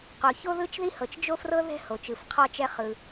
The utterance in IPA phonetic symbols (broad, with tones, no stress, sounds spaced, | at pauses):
q o˩ ç o˥ ð ɯ˥ t͡ʃ ð i˥ h ɤ˩ t͡ʃ d͡ʒ o˥ f r ɤ˥ ð ɛ̤˥ h o˩ t͡ʃ ɯ˩ f qʰ ɔ˥ t͡ʃ ɛ˥ χ ɯ˩